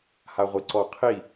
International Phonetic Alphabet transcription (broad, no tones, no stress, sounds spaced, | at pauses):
h a ʁʷ i ǀ ɔ qʰ i